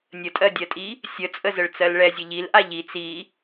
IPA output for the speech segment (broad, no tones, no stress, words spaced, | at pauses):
nʲətʼɜdʲɜtʼi | sʲət͡sʼəzəɭ t͡sɜlɭɛzʲə ʎilʔa ʎi t͡si